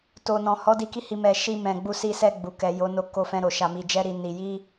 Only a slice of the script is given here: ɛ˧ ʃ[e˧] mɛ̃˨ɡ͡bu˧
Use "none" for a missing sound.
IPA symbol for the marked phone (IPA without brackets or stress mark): i˧